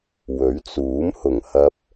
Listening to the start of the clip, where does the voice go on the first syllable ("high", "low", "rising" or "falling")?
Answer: rising